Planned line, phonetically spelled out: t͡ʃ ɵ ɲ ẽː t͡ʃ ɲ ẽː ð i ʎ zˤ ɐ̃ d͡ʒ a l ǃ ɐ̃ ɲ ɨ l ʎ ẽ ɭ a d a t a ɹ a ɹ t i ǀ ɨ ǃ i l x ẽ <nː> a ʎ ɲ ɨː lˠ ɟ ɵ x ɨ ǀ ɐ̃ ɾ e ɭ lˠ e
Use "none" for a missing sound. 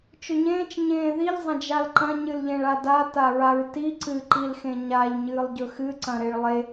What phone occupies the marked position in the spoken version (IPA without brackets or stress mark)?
ɲ